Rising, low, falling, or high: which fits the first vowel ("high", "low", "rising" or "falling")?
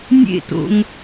falling